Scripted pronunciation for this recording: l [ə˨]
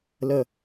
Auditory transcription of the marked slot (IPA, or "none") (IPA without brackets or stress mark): ə˨